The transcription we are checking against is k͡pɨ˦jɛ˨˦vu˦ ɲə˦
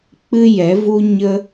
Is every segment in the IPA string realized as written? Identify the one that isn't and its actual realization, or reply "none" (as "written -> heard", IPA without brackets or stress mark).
none